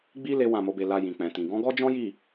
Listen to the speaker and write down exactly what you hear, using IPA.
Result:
ɡ͡bi˦ le˦wã˦˨mo˨˦be˧ la˧jĩ˨k͡pɛ̃˨tĩ˨ ɡɔ̃˨˦ɡɔ˦d͡ʒɔ̃˦ji˦˨

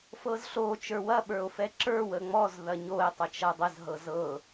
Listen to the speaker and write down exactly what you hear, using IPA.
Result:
fɤzɬo t͡ʃə˞wɐ ɓə˞o̯fɛǁə˞ wəŋ͡mɔz ðɐɲoe̯ tˤət͡ʃɐdˤəz ɦɤzɤ

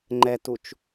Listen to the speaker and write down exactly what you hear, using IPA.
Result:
ŋ͡ǃɛtut͡ʃ

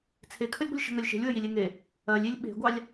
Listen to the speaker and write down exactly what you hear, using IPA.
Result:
t͡sʰekʰəlʲɡʷə̤lʲ ʃə̤ŋɜlʲʃe̤lʲwə jilʲeŋe | ɜlʲilʲ ɓe̤ɡʷɑlʲ

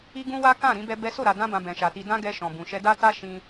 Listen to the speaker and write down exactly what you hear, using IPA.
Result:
i˦ɡũ˦wa˦ kã˦˨ɾĩ˧bɛ˧ bɛ˦ so˦˨ɾa˨dã˧bã˨ bɛ̃˨ʃa˨ti˧ dã˦ɡɛ˧ʃɔ̃˨ bũ˨ʃɛ˧da˦ ta˦ ʃĩ˧

